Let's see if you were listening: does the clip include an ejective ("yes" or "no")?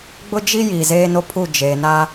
no